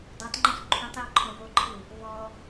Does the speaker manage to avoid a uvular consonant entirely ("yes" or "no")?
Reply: yes